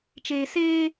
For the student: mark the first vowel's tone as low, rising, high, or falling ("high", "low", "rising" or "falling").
low